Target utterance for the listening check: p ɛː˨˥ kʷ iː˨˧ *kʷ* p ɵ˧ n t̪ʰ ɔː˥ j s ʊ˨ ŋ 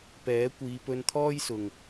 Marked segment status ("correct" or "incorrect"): incorrect